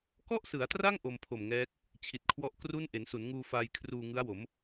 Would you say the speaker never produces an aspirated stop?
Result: no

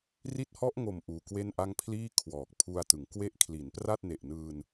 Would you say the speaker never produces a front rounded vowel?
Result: yes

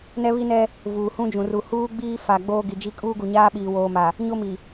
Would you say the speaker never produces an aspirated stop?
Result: yes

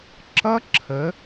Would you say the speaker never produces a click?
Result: no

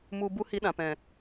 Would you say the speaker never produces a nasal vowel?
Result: no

